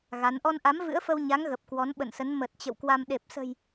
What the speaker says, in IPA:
ɣ a˨˦ n ʔ ɔ˧ n ʔ a˨˦ m v ɨ̰˧˥ ə̯ f ə˧ w ɲ a˨˦ ŋ ɣ ə˨˩ p̚ k w ɔ˨˦ n ɓ ə̰˧˨ n s ə˨˦ n m ə˨˩ t̚ t͡ɕ ə̰˧˨ w k w a˧ m ɗ e˨˩ p̚ s ə̤˨˩ j

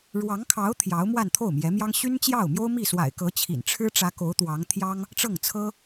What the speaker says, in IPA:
ɻ w ɑ˧˥ ŋ kʰ ɑ˧˥ ʊ̯ t̪ʰ j ɑ˧˥ ʊ̯ m w a˥˧ n t̪ʰ o˥˩ ʊ̯ m j ɛ˧˥ m j ɑ˥ ŋ ɕ y˥ n t͡ɕ j ɑ˥˩ ʊ̯ m j o˥ ʊ̯ m i˥˩ s w a̰˨˩ ɪ̯ k ɤ˧˥ t͡ɕʰ ḭ˨˩ n ʈ͡ʂʰ ɻ̩˥ ʈ͡ʂ ä˧˥ k o˧˥ ʊ̯ t̪ w ɑ˧˥ ŋ t̪ʰ j ɑ˥ ŋ | ʈ͡ʂ ɤ˥˩ ŋ t͡sʰ ɤ˥

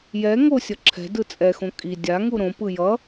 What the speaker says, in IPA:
j ɛ ŋ o sʲ ʌ ǁʰ ɛ̤ d ɯ t͡sʼ ɛ x õ kʼ i dʲ a ŋ u ɾ õ p ɯ j ʌ

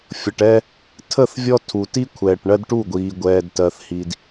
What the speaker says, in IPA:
fʲ ʌ˨ ʈ ɛ˦ | tʰ ə˦˨ θ vʲ ɔ˦ tʰ u˨ t i˦ kʷʰ ɛː˨ ʈ ɳ ɜ˦ d ʈ u˦˨ ɡʷ iː˨ ɡʷ ɛː˨ d t ɜ˨ θ h i˨ d

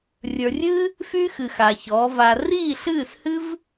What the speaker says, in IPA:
rʲ ə˞˨ rʲ ɨː˦ | f yː˦ x ɨ˨ x a˨ ç ɔː˨˦ v a˧ r iː˦˨ ɬ ɨː˦˨ s h ɨ˦ v

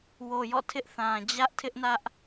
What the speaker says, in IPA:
w o˨ j ɔ̰˦˨ tʰ ɪ˦ ʔ θ ã˨ d͡ʑ ä˦ ʔ tʰ ɪ˦ ʔ n ä˦ ʔ

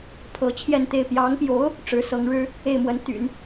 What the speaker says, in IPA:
pʰ ɤ˧˥ t͡ɕʰ j ɛ˥˧ n t̪ e˥˩ ɪ̯ p j ɑ˧˥ ŋ p j o˧˥ ʊ̯ | ʈ͡ʂ ɻ̩˧˥ s ɤ˧˥ ŋ ɻ ɻ̩˥ | e˥˩ ɪ̯ m w ə˧˥ n t̪ y̰˨˩˦ n

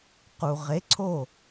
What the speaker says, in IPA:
q u˩ ʁ e˩˥ ǀʰ o˥˩

